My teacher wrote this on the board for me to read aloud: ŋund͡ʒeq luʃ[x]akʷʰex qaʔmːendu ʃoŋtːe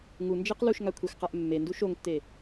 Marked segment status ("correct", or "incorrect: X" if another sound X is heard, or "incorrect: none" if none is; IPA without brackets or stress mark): incorrect: ŋ